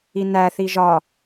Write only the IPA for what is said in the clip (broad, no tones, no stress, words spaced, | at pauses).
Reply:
inæ θiʒɒ